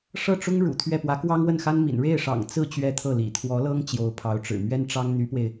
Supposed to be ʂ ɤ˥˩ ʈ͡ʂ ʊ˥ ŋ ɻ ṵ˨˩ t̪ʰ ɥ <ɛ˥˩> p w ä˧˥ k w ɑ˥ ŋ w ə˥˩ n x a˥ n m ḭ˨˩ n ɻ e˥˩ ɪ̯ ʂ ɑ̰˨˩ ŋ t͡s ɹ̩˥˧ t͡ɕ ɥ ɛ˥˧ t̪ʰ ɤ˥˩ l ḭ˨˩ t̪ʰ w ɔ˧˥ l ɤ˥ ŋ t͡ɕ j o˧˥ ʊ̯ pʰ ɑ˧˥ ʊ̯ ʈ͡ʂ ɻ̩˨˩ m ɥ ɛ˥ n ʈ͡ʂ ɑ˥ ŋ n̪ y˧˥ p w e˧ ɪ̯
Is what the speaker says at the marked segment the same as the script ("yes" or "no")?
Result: yes